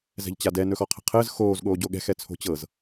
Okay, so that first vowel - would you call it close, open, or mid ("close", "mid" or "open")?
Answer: mid